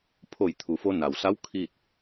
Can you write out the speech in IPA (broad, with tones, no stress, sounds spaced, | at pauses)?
pʰ o˧˩ j t̪ʰ u˩ f o˧ n a˩ w s a˧˥ w kʰ i˥˨ t̚